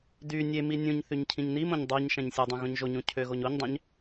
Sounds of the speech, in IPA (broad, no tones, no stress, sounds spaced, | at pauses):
d y nʲ e m i nʲ ũ ɲ θ y ɲ cʰ ĩ ɲ n i m õ ɲ dˤ u ɲ ʃ æ̃ ɲ sʲ o dˤ ũ ɣ õ ɲ ʒ o ɲ ũ cʰ ø ɣ o ɲ o ɲ dˤ æ̃ ɲ